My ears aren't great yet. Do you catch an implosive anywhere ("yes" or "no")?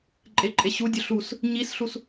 no